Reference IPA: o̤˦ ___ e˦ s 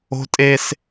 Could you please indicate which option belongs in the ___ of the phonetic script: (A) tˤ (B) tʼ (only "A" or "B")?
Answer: B